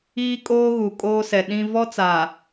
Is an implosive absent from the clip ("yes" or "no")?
no